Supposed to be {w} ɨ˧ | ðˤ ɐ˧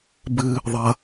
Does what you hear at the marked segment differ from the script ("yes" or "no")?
yes